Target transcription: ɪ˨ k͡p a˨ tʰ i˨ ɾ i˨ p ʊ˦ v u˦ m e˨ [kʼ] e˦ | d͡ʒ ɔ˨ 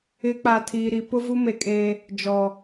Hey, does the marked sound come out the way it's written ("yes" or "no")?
yes